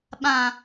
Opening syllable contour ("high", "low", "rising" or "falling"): low